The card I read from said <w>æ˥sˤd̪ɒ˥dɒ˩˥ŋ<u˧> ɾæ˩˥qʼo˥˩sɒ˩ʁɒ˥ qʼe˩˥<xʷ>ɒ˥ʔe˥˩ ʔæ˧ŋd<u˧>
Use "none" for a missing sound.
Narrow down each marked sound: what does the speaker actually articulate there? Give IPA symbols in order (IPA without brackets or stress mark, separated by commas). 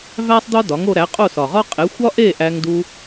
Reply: v, o˧, xʷ, u˧